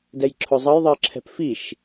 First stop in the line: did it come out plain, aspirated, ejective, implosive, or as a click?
plain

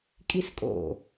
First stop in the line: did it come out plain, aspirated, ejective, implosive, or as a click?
ejective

